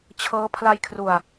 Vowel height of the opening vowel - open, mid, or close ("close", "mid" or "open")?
mid